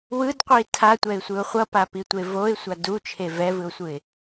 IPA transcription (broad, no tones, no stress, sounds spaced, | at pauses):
w ɯ d qʷ i tʰ a tʷ ɛ ɪ̯ sʷ ɯ ʊ̯ χʷ ʌ p a p i tʷ e v o ɪ̯ sʷ a d u t͡ʃʰ e v ɛ v ɯ ʊ̯ sʷ ɯ ɪ̯